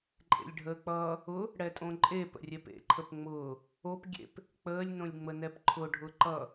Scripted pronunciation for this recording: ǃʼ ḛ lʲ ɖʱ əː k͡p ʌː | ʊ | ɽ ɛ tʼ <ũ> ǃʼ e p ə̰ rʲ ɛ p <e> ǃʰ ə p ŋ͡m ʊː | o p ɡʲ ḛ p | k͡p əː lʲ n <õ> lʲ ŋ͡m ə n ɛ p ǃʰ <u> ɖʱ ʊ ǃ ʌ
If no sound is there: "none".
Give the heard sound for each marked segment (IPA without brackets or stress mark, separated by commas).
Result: õ, ḛ, õ, ʊ